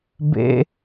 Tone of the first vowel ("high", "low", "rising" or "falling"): high